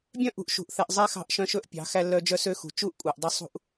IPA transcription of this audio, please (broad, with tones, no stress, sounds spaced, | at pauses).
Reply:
bʲ œ̃˦ ʔ ṳ˨ ʔ ʃ ṳ˨ ʔ θ ɛ˨ ʔ zˤ ɛ˦ x ɑ̤˦˨ ʔ ʃ œ̃˦ ʃ ɵ˦ ʔ pʲ ɑ̤˨˦ x æ˦ lː œ˦ d͡ʒ œ˦ s ø˦ x ṳ˨ t͡ʃ u˦ ʔ kʷʼ ɛ˨ ʔ dˤ ø˦ sˤ ṳ˦ ʔ